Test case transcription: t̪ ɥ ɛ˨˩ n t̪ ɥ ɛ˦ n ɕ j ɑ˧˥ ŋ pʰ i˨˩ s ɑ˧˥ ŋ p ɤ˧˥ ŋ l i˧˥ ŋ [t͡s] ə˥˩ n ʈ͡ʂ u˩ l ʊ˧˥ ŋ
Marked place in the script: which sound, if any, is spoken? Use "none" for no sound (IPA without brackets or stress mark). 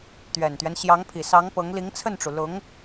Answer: t͡sʰ